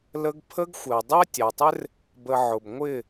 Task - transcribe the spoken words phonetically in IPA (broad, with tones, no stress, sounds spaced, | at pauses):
l ə˦ ɡ pʰ ə˦ ɡ xʷ ɪ˨ ɐ̯ dˤ ɜ˦ tʲ ɑ˨ tˤ ɪ˦ r | b ə˧ ʕ ʊ˨ b ŋʷ ɪ˦˨